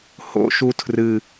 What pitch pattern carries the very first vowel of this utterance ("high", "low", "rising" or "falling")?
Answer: high